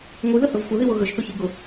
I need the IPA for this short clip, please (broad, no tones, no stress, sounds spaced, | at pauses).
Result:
ŋʷ i ð ə h ə v xʷ ə ð i w ʊ ɣ ə ʒ θ ʊ ç i ɡ ʊ